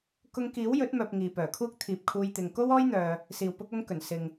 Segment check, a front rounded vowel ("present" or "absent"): present